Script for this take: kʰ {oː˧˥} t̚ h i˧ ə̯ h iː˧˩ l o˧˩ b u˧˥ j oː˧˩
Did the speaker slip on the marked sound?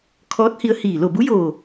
yes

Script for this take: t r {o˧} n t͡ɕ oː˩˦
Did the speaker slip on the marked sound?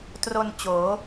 no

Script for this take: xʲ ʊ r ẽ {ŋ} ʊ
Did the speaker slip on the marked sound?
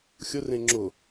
yes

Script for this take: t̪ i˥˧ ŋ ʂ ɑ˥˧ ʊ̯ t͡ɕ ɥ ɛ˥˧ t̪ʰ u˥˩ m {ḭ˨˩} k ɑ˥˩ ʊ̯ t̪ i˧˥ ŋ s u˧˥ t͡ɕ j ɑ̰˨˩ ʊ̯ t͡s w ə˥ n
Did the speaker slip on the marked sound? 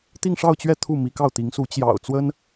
yes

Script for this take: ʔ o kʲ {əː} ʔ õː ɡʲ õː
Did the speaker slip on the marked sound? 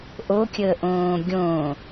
no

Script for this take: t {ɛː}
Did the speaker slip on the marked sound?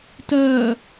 yes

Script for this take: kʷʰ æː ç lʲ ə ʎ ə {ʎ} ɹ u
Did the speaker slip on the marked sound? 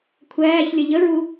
yes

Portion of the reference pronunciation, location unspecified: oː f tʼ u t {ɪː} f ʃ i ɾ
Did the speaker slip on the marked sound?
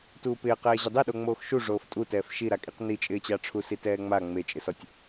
yes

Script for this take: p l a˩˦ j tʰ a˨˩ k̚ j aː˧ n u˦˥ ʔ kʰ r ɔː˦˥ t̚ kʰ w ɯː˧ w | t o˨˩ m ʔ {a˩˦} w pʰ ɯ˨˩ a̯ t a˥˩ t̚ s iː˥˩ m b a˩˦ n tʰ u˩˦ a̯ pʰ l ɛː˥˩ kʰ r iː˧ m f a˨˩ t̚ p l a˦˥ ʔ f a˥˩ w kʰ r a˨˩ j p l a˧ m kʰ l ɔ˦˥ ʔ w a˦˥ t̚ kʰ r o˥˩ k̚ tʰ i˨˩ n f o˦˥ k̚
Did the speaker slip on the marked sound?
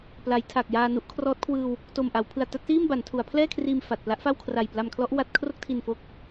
no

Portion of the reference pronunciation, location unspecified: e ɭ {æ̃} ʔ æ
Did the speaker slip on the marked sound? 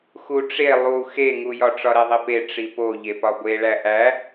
yes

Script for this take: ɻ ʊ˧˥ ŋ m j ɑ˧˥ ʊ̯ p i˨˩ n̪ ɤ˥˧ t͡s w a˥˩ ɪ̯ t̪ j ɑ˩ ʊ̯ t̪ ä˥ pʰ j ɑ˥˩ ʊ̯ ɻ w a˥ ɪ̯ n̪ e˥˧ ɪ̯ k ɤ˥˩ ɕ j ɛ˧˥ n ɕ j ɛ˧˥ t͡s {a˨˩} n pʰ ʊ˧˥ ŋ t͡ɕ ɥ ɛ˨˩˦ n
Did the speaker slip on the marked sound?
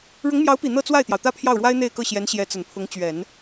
yes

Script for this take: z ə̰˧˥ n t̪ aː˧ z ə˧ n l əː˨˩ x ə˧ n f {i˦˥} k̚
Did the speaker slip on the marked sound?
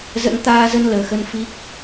no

